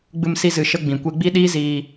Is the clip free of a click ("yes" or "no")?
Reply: yes